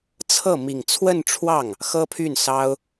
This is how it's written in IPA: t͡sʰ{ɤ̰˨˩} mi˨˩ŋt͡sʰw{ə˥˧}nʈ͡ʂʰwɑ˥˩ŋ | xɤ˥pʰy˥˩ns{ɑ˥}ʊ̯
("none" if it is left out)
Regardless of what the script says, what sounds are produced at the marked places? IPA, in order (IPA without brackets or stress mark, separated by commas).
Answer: ɤ˥˩, ə˥˧, ɑ˥